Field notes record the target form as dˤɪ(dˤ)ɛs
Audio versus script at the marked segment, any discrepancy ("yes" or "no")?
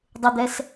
yes